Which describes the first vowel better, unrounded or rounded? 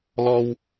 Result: rounded